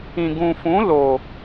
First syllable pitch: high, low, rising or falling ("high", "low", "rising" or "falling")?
low